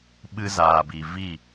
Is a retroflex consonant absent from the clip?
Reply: yes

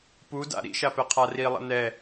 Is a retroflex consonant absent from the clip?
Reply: yes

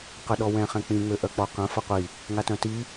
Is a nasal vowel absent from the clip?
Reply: no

